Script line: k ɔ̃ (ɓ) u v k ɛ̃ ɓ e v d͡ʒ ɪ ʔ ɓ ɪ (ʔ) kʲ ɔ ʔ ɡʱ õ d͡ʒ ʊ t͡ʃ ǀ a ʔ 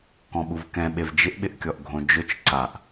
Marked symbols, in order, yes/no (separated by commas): yes, yes